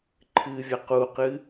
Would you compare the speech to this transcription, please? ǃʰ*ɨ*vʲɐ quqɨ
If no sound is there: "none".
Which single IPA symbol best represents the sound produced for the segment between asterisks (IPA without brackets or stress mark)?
ɨ